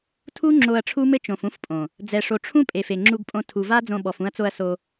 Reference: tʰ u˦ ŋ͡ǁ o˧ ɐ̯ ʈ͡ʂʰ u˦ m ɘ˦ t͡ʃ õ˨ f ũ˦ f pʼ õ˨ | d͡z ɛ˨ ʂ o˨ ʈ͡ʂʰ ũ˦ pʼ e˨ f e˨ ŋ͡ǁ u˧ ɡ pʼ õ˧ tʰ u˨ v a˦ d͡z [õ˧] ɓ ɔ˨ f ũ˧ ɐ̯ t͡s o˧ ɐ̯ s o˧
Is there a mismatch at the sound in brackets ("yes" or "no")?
no